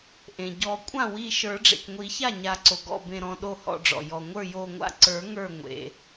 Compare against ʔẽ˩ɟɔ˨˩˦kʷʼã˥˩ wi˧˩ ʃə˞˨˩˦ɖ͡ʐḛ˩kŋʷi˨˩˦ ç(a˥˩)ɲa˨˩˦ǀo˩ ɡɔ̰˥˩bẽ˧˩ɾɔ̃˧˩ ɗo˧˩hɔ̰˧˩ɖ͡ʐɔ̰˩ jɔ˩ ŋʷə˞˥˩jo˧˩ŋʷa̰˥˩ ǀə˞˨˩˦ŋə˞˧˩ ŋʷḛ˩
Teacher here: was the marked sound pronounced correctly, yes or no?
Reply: yes